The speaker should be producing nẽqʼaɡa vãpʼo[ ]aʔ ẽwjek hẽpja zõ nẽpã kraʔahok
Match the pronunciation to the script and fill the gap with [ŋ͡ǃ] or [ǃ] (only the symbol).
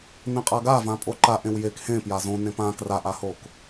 ǃ